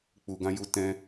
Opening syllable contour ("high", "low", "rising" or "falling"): low